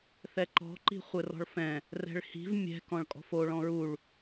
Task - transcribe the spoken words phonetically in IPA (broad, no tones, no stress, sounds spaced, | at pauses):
θ ɛ ǃ ɔ̤ ǃ i̤ χʷ ɘ r ɔ̤ ɭ f ɛ̃ | r ɛ̤ ɭ h i̤ v mʲ ɛ̤ k ɔ̃ ɭ kʼ ɔ̤ f o ɭ ɔ̃ ɹ u ɭ